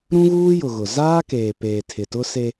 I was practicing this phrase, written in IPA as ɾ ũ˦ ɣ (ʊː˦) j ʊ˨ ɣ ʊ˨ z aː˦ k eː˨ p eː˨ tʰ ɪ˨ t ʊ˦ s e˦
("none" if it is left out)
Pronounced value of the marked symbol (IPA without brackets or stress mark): uː˦